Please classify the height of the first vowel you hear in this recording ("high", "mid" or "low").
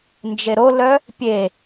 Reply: mid